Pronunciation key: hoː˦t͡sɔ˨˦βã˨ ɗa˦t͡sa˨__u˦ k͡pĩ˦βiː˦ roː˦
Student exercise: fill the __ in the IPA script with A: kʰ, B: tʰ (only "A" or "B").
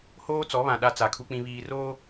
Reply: A